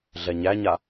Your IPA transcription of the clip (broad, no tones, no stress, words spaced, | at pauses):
ɮɛɲæɲa